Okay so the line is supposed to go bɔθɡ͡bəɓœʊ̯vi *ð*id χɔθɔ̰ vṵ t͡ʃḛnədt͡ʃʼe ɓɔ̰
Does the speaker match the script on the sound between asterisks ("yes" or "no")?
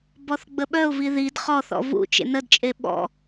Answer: yes